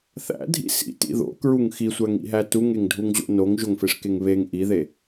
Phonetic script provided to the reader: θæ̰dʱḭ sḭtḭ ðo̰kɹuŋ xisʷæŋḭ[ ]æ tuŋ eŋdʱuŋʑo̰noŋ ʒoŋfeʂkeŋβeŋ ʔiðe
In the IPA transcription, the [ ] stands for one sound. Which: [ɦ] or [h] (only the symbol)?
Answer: ɦ